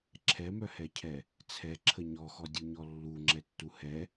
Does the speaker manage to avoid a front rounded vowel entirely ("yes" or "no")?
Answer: no